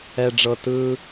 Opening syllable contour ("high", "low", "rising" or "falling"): low